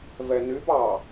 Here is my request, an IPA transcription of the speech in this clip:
v ɛ n y b ɑ

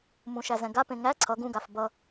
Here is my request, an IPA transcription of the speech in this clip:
m ũ ʃ æ z ɛ̃ ɡ a p ẽ ŋ æ ǀʰ ʌ ɡ ũ ɡ a f b ʌ

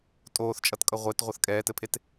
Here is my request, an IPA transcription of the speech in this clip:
tʼ oː θ t͡ʃʼ ʌ t kʼ ʌ ʁʷ e t ʁʷ ʌ θ kʼ ɛː t ɘ pʰ e t

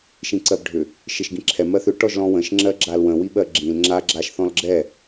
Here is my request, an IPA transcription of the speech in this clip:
ʃ ĩ ǀ ɜ b ɖʱ ʏ | ʃ ɪ ʃ ɡ ĩ ǁʰ ɛ m ɜ θ ʏ ʈ ɔ ʒ l ɔ̃ w ə̃ ʃ ŋ͡ǁ ɜ ɡ͡ǁ a l w ə̃ w i ɓ ɜ ɡ͡ǁ ĩ l ŋ͡ǁ a ɡ͡ǁ a ʃ θ ɔ̃ l ɡ͡ǁ ɛ

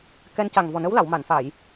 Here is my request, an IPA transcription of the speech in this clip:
k ɛ˧ n c a˨˩ ŋ v ɔ˨˩ n ə˧˥ w l a˨˩˨ w m a˨˩˨ n f a˨˩˨ j

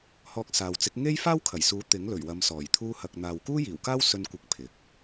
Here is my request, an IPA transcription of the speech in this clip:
h ɔː˧ k̚ s aː˨ w t͡s ɪ˨˥ k̚ ŋ e˥ j f aː˥ w kʰ ɐ˨˩ j s uː˨˥ t̪ ɪ˨˥ ŋ l ɵ˨˩ ɥ w ɐ˨˧ m s ɔː˨˩ j t̪ʰ uː˧ h ɐ˨ k̚ n̪ aː˨ w k uː˥ j iː˨˩ w k aː˥ w s ɵ˧ n kʷ ɪ˨˥ k̚ pʰ ɪ˨ k̚

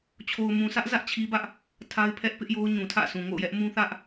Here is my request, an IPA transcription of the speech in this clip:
t͡ɕʰ o˨ ʊ̯ m ũ˨ sʰ ä˦ ʔ z ä˦ ʔ t͡ɕʰ i˦ b ä˦ ʔ | tʰ a˦ ɪ̯ pʰ ɛ˦ ʔ p ɪ˦ ʔ j o˦ ʊ̯ ɲ ũ˨ tʰ ä̰˦˨ s ũ˨ ŋ o̰˦˨ ʊ̯ j ɛ˦ ʔ m ũ˦ θ ä˦ ʔ

